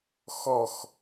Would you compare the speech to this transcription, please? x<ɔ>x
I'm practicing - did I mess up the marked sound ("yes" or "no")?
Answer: no